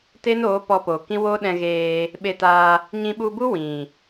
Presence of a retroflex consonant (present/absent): absent